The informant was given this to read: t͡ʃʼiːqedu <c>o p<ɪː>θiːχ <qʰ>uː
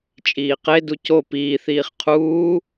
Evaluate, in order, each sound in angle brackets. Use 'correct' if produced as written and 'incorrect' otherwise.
correct, incorrect: iː, correct

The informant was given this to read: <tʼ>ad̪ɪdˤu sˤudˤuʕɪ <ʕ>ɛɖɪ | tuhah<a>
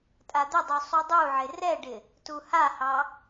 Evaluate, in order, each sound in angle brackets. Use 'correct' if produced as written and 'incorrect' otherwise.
correct, incorrect: r, incorrect: ɑ

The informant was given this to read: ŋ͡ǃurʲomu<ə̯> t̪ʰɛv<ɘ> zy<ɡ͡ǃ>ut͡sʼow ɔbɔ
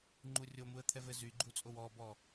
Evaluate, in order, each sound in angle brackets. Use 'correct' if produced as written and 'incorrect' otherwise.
correct, correct, correct

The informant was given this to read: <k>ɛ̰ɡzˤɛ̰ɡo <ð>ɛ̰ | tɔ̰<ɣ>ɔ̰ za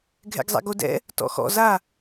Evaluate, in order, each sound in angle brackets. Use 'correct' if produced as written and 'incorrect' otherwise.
incorrect: ɡʱ, incorrect: d, incorrect: x

